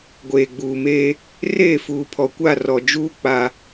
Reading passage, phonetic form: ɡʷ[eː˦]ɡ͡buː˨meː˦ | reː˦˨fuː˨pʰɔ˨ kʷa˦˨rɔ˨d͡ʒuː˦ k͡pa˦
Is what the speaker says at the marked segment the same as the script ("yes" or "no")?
no